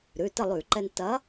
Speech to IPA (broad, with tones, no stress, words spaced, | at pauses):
ɾʉ˩˧˩tə˥˨lˠʉ˧˩˧ǃɛ˧n tɐ˨˥